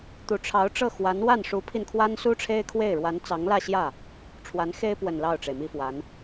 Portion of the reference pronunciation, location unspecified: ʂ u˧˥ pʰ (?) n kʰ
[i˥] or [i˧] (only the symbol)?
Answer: i˧